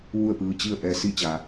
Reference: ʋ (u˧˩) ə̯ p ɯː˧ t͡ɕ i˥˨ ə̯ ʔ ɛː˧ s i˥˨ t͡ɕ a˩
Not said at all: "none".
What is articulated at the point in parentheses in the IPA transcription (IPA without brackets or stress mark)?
u˥˨